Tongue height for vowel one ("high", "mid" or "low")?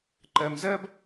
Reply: mid